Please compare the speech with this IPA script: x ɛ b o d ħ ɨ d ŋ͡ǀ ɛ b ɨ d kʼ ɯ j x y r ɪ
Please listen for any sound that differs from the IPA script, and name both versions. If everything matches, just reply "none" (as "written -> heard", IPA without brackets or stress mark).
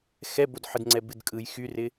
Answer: none